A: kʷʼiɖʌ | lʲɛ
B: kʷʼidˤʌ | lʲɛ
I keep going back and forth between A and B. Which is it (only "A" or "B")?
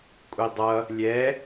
B